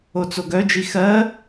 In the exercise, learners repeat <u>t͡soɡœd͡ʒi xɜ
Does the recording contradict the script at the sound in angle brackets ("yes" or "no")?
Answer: yes